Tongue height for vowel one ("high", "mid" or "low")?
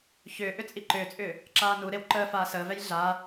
high